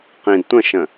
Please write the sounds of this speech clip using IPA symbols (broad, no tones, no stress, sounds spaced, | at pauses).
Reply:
q ĩ d tʷ ə̃ ʃ ə̃